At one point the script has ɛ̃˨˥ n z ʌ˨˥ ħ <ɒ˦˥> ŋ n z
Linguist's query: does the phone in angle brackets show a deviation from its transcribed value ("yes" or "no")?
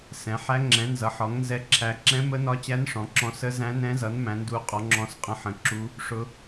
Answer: yes